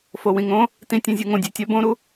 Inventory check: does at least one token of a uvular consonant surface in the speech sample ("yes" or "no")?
no